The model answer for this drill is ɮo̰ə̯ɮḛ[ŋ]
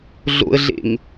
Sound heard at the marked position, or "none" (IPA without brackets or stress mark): ŋ